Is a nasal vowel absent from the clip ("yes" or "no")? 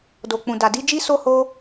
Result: no